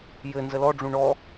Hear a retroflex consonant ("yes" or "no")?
yes